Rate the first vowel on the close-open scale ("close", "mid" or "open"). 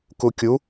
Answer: close